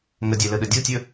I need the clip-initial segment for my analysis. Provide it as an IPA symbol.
ŋ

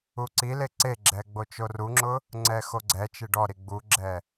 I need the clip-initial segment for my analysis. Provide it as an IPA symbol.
u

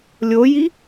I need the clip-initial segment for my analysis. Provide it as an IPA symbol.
lʲ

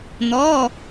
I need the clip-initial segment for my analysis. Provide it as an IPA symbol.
n̪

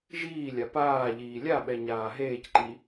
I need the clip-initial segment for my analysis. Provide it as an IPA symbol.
ʒ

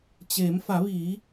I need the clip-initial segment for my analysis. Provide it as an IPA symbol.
t͡ɕ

